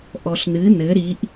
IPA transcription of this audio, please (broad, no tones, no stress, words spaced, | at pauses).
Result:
ʔɔɬnɨ nɘ ɾiʔ